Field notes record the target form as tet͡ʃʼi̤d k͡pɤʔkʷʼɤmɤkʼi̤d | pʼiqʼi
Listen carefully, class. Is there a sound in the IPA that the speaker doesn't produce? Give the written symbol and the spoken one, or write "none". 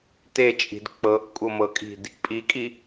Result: qʼ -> kʼ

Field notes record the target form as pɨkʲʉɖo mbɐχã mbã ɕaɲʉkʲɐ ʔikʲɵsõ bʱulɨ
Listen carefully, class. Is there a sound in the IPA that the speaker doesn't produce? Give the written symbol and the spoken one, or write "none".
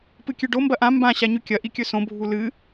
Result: χ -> ʔ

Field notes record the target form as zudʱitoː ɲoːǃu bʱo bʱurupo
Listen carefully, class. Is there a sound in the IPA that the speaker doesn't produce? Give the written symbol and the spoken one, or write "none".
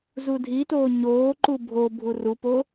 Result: none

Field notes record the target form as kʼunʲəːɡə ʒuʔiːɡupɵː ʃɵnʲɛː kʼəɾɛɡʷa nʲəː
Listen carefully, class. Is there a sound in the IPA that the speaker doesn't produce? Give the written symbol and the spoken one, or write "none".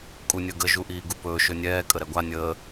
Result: none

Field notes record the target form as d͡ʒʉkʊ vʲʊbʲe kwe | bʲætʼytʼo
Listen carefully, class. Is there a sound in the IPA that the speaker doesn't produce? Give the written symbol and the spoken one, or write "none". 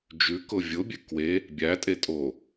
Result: y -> e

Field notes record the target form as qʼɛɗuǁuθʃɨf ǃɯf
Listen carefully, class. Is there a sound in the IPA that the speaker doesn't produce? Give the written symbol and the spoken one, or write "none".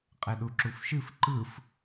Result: θ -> f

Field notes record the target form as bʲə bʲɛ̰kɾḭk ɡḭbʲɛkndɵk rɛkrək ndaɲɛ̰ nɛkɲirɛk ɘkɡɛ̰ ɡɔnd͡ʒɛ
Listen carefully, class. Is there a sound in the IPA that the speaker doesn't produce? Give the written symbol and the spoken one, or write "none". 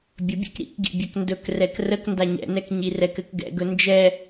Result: ɔ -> ɵ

